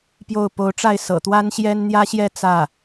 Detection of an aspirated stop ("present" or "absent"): absent